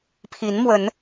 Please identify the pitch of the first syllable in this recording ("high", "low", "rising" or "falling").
rising